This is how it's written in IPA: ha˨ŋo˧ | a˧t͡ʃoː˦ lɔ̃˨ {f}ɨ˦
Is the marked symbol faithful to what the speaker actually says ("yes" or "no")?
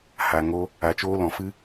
yes